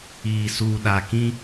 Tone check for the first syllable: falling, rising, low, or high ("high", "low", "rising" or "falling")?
low